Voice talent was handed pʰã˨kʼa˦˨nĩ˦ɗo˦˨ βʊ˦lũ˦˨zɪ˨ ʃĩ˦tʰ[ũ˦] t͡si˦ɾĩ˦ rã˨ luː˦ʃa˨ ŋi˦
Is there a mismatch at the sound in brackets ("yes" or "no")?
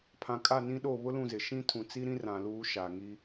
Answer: yes